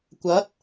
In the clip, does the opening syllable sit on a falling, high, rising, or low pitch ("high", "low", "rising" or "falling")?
rising